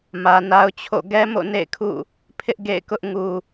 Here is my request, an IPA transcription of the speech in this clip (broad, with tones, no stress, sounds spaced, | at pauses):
m ä˨ n a˦ ʊ̯ t͡ɕʰ o̰˦˨ ɡ ɛ˦ m o̰˦˨ n ḛ˦˨ ɪ̯ kʰ ṵ˦˨ | pʰ ɪ˦ ʔ ɡ ḛ˦˨ ɪ̯ k ʊ˦ ʔ ŋ u˨